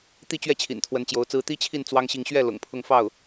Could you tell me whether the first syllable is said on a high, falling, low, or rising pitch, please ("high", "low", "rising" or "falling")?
falling